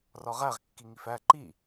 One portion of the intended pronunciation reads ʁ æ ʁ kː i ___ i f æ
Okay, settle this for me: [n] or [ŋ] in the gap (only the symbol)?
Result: ŋ